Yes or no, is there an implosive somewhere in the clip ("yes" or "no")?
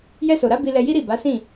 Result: no